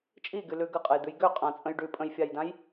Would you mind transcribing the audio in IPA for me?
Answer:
t͡ʃʼ i ɡ y l ʉ ɡ ə qʼ ə j d̪ ʉ j ɡ ø qʼ ã t͡sʼ ə̃ j ɖ ʉ pʼ ə̃ j fʲ a j d ã j

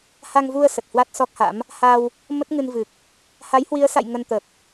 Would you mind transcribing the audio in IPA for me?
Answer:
h a˧ ŋ v u˧ ə̯ s ə˨˩ t̚ h w a˦˥ t̚ s ɔ˦˥ k̚ h a̰˧˥ m | h a˧ w | m ə˦˥ t̚ ŋ ɨ˧ n v ɨ˨˩ k̚ | h a˨˦ j h w i˨˦ ə̯ s a̰˧˨ j ŋ ə˧ n t̪ ə˨˩ p̚

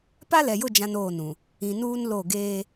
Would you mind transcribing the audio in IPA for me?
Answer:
p a˦ l ɛ˨ j ʊ˦˨ d͡ʒ ã˦ n oː˦˨ n ũ˨ | ĩ˨ n uː˦ n l o˦˨ ɡ eː˦

